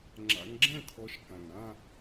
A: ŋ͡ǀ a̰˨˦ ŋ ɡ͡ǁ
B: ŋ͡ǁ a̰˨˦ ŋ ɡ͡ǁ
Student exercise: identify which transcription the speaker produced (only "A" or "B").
B